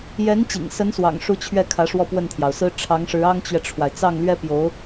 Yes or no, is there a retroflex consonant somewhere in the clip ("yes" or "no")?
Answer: yes